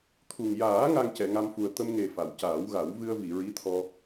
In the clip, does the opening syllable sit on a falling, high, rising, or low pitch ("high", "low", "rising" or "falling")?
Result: low